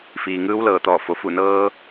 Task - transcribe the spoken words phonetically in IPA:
f iː˩ ŋ ɯː˧˥ w l ɤː˧˩ t̪ ɔː˧˩ f o˩ f u˧˩ n ɤː˧

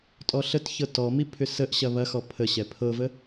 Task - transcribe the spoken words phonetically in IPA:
tʼ ɔ ɬ ə t ç ɤ t ɔ m i pʰ ʏ s ə ʔ ɕ ɐ β ɐ x ɔ pʰ ə ɕ ɛ pʰ ɤ v ə

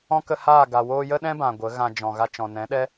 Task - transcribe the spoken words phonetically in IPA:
ɔ̃˦ k ə˧ h aː˦˨ ɡ a˨ w oː˧ j ə˦ ɗ ɛ̃˦ b ã˨ ɡʷ ə˨˦ ɣ ã˧ d͡ʒ ɔ̃˨ ɣ a˧ t͡ʃ ɔ̃˨ n ɛ̃˨˦ ɗ ɛ˦

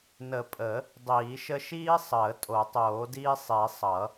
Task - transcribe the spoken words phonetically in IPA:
n ə˨˩˦ pʼ ə˨˩˦ | dˤ iː˨˩˦ ʃ ə˦ ʃ iː˦ sˤ əː˨˩˦ tʼ o˨˩˦ tˤ oː˨˩˦ d iː˦ sˤ i˨˩˦ sˤ ʌ˨˩˦

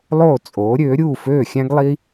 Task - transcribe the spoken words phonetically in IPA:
lˠ oː˥˩ t͡sʼ oː˩˥ ɾʲ øː˩˥ ɾʲ uː˥˩ f øː˥˩ xʲ æ̃˥ ɡ lˠ i˥

